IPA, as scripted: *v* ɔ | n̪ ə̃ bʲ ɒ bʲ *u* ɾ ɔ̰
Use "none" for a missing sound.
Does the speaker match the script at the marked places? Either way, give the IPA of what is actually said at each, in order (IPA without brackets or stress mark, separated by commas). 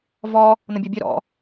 v, ø